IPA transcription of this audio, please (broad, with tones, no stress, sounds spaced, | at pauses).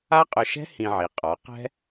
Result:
a˥ qʼ ʊ˧ ʃ ɛ̤˥ h ĩ˧ ʕ i˩˥ qʼ ɔ˩˥ q ɛ̤˥